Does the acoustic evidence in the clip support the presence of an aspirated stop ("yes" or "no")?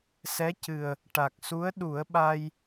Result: no